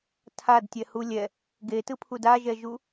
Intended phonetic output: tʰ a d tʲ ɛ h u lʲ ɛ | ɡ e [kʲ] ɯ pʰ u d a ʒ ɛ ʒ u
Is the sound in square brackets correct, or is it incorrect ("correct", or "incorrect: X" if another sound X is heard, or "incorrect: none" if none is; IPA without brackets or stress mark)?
incorrect: t